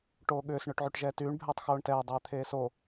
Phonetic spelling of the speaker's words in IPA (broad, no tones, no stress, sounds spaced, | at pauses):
ʈ oː ɠ ʏː s ɳ ʏː ʈ ʕ y ʈ ʒ ɛː t yː ɳ bʱ ɛː tˤ x oː ɳ t ɛː dˤ eː t̪ʰ eː s o